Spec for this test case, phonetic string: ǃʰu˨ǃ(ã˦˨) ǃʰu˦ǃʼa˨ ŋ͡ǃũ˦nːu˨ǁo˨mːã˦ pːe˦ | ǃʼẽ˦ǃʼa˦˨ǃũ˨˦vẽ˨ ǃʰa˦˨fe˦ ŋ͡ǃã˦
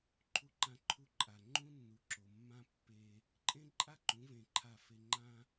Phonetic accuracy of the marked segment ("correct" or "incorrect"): incorrect